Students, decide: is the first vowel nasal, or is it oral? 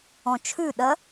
nasal